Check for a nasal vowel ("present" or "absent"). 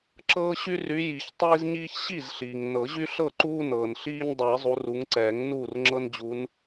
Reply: absent